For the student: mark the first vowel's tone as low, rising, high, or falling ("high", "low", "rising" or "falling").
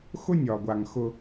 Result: high